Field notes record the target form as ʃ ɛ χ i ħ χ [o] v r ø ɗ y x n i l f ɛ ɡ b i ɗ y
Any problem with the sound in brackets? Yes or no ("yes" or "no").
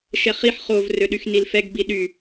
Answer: no